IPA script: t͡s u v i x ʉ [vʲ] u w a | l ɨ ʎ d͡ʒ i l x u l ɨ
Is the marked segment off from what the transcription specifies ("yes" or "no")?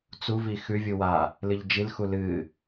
no